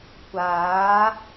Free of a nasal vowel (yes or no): yes